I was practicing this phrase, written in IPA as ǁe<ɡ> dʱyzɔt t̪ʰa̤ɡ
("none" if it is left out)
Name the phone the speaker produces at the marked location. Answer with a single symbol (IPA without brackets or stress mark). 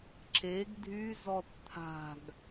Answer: ɡ